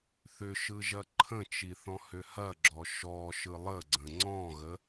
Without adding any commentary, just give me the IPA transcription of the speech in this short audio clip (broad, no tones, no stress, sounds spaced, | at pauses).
θ ʏ ʃ ɯ ʒ ɐ ǃʰ ə̃ t͡ʃ i θ ɔ̃ h ʏ h ɐ ɡ͡ǁ ɔ ʃ ɔ ʃ ɯ lˠ ə ɡ͡ǀ ə̃ ŋ͡ǀ ɔ̃ ɣ ə